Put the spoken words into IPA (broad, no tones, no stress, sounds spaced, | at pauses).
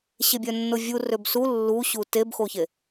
ɕ e bʲ œ nː o vʲ u r ø b s u lː u ɕ u t e b x o ç e